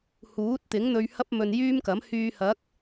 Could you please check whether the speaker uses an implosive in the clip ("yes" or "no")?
no